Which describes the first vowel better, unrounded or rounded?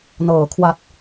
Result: unrounded